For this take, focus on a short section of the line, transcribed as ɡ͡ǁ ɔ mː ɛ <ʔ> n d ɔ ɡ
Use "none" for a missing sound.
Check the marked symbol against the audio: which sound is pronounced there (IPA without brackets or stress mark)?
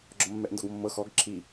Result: ʔ